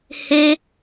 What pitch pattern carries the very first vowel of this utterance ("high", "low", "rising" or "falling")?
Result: high